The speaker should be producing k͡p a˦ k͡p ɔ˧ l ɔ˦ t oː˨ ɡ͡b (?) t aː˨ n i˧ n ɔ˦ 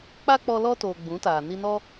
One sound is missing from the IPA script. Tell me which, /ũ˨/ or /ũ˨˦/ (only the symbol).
ũ˨˦